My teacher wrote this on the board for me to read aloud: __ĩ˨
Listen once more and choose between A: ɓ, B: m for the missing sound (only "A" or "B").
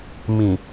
B